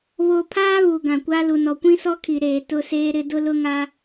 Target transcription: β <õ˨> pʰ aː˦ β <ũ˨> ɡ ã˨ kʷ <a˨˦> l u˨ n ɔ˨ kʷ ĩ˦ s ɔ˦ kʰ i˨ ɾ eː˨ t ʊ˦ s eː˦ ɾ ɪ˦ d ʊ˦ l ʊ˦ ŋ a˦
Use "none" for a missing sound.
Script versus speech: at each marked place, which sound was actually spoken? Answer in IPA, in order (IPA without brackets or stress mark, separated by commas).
o˨, u˨, a˦